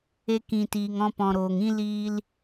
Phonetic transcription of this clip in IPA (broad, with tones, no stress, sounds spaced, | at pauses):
e˧ k ĩ˨ t iː˨ ŋ ɔ̃˧ p ɔ̃˨ ɾ oː˨ ŋ ĩ˦ l iː˧ l